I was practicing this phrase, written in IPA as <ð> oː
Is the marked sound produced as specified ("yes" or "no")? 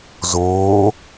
no